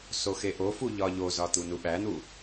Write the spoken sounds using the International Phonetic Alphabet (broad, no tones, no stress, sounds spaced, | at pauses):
s o x e ʔ o f u ʎ ɒ ʎ o z ɒ t̪ u n u ɓ æ n̪ u